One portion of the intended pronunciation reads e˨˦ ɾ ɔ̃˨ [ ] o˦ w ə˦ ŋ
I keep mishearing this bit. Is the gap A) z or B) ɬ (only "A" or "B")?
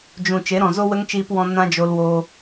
A